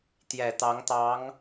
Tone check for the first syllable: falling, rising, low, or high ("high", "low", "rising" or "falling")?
low